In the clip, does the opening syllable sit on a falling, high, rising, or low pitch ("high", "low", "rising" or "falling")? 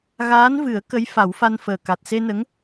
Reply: rising